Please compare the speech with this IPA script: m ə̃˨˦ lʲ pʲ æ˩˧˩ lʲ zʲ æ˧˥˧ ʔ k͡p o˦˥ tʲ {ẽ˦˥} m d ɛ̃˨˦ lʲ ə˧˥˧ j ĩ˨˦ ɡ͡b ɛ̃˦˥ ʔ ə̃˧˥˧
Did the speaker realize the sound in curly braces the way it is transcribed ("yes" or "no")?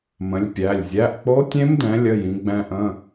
yes